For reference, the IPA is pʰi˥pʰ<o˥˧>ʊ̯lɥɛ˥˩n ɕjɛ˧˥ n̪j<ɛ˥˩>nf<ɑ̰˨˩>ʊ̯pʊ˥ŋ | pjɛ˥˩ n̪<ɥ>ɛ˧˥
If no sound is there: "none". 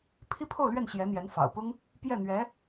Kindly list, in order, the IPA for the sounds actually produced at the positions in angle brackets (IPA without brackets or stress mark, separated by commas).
o˥˧, ɛ˧˥, ɑ̰˨˩, ɥ